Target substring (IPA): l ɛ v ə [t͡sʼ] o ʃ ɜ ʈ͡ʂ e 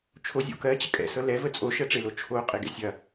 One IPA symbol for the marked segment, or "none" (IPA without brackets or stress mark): t͡sʼ